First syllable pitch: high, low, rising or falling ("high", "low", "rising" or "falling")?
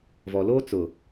low